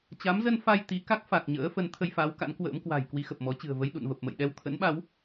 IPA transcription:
t͡ɕ a˨˦ m z ə˧ n f a˧ j t̪ i˨˦ k a˦˥ k̚ f a˨˩ k̚ ɲ ə̰ː˧˥ f ə˨˦ n t̪ʰ ə˧ j f a˨˦ w k a̰˧˥ n k w ə̰ː˧˥ m k w a̤˨˩ j k w i˧ x ə˨˩ p̚ m ɔ˨˦ t͡ɕ ɨ̤˨˩ ə̯ v ə˧ j ɗ ṵ˧˨ n v ə˨˩ p̚ m ə̰˧˨ j ɗ ɛ˧ w t̪ʰ ə̰˧˥ n ɓ a˨˦ w

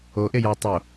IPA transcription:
o ʔ e j ɑ tˤ o

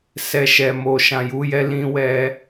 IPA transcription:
s ɛ˨ ʃ ɛ˨ m o˨ ʃ ã˨ j u˨˦ j ɛ˦ l ĩ˧ w ɛ˧

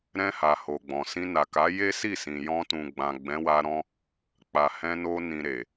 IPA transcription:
ɾ ɛ̃˧ h a˨ h o˨ ɡ͡b ɔ̃˨ s ĩ˧ n a˨ k a˨˦ j e˦ s i˦˨ s ĩ˨ j ɔ̃˧ t ũ˨ ɡ͡b ã˨ ɡ͡b ɛ̃˨˦ w a˧ ɾ ɔ̃˦ | k͡p a˨ h ɛ̃˧ n o˧ n ĩ˨ ɾ e˨

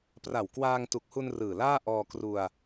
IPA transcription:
p r a˨˩ w k w aː˧ ŋ t u˨˩ k̚ h u˧ n r ɯː˨˩ l aː˥˩ ʔ ɔː˧ k r u˧ a̯

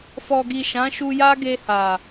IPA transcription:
f ɔ˨ ɡ i˨ ʃ ã˨˦ ʃ u˧ j a˦ ɡ e˧ h a˨

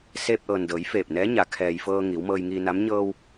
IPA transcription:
s eː˧ p̚ ʔ ɤː˩ n d ɤː˩˧ j f eː˧˩ p̚ n ɛː˧˥ ɲ a˩˧ kʰ ɛː˩ j f ɤː˧ ŋ iː˩˧ w m ɤː˧ j ŋ iː˧ n a˧˥ m ɲ ɤː˧ w

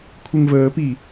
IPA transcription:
kʷʰ e ŋ v əː p i

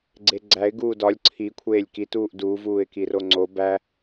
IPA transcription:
ɡ͡ǀ e ɡ͡ǀ æ ɪ̯ ɡ uː d ɒ lʲ ǀʰ i kʷʰ eː lʲ k i t uː ʔ d u v uː ɪ̯ k i r o ŋ͡ǀ o b æ

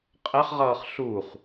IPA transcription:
qʼ ɛ χ ʁ ʌː χ ɬ u χ

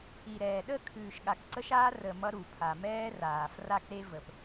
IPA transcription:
i˨ ɾ ɛː˨ ɗ ə˦˨ kʰ ʉː˨ ʃ ɠ a˨ k ǀ ə˦ ʃ aː˦ r ə˨ m ʌ˦ ɾ u˨ pʰ a˨ m ɛː˦ r aː˨ f r a˦ k ɾ e˦ v ə˨ p

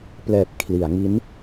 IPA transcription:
p l ɛː˨˩ p̚ kʰ l i˩˦ a̯ ŋ i˦˥ n

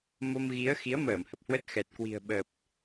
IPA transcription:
m o˧ m ɣ i˨˦ ə̯ x i˨˦ ə̯ m əː˧˩ m h ə˨˩ p̚ h w ə˦˥ t̚ x ɛ˨˩ t̚ k w i̤˨˩ ə̯ ɓ ə˨˩ p̚

